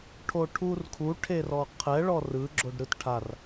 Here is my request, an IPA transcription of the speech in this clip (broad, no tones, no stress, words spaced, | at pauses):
ʈʰoʈʰurkʰu ʈʰerɔqʰɛ ɭɔrɯ ɡ͡ǁoɖɾɯtʈʰar